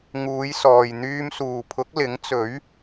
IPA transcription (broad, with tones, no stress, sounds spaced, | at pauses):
ŋ uː˨˧ j s ɔː˨ j n̪ yː˧ m s uː˨ pʰ ʊ˨˥ k̚ l ɪ˨˥ ŋ t͡s ɵ˨˥ ɥ